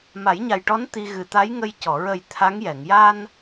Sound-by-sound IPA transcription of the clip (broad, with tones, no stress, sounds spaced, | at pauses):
m a˨˩˦ j ɲ a˨˩ j ʈ ɔ˧˥ n t̪ i˧ ɣ ɨ˨˩ t̪ a˧˥ j ŋ ə˧ j c ɔ˨˩˨ ɹ ə˨˩ j t̪ʰ a˧˥ ŋ j ɛ˨˩˨ ŋ j a˧ n